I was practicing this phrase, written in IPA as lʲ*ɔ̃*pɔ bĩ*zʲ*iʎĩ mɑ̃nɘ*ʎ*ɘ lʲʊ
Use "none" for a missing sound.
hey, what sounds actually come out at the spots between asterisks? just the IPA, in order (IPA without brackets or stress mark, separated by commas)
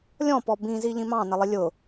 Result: ɔ̃, z, lˠ